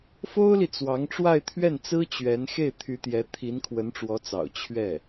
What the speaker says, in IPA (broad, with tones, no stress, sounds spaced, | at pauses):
f o˥ ʊ̯ l i˨ t͡s w ɑ˧˥ ŋ ʈ͡ʂ w a˥˧ ɪ̯ t̪ʰ ɥ ɛ˥˩ n t͡s ɹ̩˥ t͡ɕ ɥ ɛ˧˥ n x e˥˩ ɪ̯ t̪ʰ y˧˥ t̪ j ɛ˧˥ t̪ʰ i˧˥ n kʰ w ə˧˥ n ʈ͡ʂ w ɔ˧˥ t͡s ɑ̰˨˩ ʊ̯ t͡ɕʰ ɥ ɛ˥˩